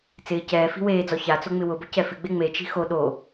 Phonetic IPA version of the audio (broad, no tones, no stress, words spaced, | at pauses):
t͡sɪː cɛː fi̤weːd͡zɔ çat͡so ŋ͡mɪwʊbʊ cɛfɪɡ͡be ŋ͡met͡ʃi̤ xo ɗo